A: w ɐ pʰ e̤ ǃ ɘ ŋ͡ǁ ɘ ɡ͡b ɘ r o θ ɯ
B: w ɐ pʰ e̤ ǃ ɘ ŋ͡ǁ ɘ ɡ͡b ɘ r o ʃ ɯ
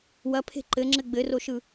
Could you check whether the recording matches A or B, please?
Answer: B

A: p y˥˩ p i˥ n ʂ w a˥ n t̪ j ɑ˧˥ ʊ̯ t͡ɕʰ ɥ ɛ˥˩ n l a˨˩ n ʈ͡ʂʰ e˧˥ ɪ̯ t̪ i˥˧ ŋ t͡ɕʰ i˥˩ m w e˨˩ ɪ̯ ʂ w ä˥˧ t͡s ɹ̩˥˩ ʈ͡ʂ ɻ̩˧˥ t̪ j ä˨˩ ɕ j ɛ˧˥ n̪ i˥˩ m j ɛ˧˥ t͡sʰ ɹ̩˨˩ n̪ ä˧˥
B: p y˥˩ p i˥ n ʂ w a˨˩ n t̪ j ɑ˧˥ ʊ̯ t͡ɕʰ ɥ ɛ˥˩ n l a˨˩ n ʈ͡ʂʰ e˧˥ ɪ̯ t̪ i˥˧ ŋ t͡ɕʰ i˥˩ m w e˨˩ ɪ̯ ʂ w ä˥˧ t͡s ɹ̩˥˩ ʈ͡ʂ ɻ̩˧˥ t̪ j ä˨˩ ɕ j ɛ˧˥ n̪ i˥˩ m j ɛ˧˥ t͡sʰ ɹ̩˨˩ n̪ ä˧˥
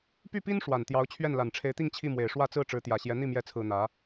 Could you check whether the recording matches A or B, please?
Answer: B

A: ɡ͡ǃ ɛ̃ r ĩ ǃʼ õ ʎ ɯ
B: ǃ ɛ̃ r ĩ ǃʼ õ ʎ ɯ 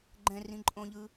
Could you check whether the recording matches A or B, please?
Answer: A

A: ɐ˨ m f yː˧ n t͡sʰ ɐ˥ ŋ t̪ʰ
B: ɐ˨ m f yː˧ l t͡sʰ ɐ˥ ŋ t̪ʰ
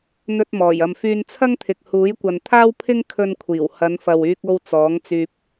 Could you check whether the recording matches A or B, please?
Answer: A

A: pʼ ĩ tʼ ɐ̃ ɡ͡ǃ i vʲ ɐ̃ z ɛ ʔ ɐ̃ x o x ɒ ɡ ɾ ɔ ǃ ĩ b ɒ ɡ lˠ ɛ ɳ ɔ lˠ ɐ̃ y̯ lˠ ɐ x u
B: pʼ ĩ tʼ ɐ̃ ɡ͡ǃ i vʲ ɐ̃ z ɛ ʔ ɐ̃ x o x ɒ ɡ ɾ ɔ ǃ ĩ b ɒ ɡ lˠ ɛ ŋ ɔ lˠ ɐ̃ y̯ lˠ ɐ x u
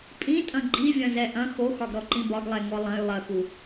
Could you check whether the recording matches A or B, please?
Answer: B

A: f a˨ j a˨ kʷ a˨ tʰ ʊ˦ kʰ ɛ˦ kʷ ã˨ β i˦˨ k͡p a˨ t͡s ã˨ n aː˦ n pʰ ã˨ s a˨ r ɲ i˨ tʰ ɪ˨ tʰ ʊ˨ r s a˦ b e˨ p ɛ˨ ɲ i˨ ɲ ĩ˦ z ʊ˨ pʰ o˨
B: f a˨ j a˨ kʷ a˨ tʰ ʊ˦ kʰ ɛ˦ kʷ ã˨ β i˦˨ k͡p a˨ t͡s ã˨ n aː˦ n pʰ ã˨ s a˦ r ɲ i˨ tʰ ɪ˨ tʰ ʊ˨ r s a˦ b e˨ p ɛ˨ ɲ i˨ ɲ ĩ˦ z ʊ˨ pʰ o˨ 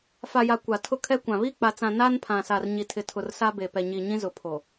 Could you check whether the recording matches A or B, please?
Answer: A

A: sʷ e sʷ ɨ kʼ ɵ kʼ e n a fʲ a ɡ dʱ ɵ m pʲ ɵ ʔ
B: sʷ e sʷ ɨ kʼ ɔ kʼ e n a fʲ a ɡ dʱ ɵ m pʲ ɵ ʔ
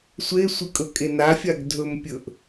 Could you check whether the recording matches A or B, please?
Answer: A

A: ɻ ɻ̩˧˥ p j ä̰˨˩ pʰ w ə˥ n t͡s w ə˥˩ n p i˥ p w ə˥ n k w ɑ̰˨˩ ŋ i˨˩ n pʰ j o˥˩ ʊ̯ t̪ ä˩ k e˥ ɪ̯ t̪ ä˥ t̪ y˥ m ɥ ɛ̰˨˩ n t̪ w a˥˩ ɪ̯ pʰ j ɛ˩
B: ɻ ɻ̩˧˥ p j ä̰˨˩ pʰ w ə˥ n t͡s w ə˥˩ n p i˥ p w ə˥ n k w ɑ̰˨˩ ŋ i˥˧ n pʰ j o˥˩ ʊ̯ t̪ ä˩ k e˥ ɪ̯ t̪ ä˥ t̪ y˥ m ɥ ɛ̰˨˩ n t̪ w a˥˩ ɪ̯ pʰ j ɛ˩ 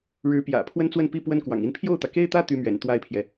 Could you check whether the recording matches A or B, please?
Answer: B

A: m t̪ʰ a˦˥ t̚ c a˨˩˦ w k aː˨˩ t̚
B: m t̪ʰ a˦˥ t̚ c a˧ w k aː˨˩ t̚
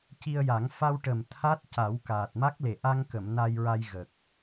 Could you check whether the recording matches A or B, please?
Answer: A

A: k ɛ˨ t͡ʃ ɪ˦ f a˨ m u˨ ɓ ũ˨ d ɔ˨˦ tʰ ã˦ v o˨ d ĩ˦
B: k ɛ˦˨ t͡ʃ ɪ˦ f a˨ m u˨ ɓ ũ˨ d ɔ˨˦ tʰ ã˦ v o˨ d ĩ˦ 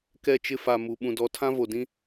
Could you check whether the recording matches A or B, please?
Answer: B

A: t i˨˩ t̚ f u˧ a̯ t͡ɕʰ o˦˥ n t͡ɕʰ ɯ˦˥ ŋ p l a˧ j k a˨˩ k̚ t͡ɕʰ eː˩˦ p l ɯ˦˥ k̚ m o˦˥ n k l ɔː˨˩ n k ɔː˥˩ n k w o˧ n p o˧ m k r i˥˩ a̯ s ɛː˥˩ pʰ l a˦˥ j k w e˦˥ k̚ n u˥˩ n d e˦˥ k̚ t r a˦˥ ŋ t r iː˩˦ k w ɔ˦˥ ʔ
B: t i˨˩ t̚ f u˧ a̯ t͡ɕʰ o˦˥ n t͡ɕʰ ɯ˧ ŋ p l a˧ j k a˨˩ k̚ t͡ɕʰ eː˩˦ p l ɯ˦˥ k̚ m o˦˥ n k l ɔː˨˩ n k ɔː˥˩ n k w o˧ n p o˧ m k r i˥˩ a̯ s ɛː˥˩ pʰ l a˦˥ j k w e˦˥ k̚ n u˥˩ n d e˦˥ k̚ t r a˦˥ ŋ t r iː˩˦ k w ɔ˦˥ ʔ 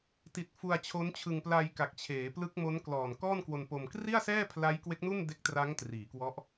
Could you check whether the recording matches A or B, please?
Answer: B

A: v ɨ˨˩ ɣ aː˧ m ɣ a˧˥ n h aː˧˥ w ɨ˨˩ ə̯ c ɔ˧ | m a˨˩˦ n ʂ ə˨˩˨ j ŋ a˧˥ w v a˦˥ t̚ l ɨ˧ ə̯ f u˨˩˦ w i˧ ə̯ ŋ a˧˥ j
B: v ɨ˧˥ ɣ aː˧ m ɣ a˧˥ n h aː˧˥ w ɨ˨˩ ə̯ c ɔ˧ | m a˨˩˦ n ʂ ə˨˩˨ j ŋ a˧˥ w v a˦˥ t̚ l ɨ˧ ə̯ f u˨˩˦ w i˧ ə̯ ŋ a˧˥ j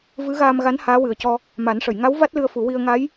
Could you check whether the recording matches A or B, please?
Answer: B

